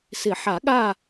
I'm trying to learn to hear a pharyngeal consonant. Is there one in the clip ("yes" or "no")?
yes